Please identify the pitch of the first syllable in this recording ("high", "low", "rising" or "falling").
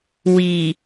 low